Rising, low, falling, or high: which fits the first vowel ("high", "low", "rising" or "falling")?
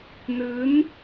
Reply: rising